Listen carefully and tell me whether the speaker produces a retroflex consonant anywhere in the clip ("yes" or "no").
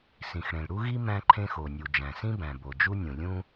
yes